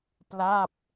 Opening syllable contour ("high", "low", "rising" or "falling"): falling